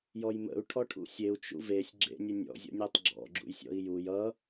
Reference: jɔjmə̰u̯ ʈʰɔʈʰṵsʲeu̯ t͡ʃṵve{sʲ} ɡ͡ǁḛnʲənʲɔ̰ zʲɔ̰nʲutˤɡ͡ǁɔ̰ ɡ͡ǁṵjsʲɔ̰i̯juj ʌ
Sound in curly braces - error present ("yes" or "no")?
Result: no